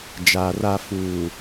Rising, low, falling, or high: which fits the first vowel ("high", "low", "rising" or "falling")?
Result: low